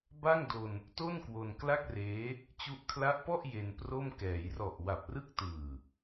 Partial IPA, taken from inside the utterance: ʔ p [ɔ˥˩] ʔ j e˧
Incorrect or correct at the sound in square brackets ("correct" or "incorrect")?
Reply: correct